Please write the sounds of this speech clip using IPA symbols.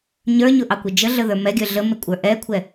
ɲ ə˞ ɲ ʊ ʔ ɑ kʷ ə d͡ʒ ə ɮ ə ð ə˞ m ɛ ɡʲ ə˞ ɮ ə m ɪ kʷʼ ə˞ ʔ ɛ kʷʰ ɛ

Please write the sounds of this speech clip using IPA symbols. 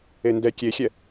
e n d ɛ kʲ e xʲ ɛ

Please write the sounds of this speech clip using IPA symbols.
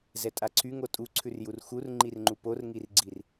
z ɛ tʼ a ǀʰ y ŋ o tʼ u ǀʰ ʉ r j u r x u r ŋ͡ǃ i r ŋ͡ǃ u p o r ŋ i r ɡ͡ǀ i r

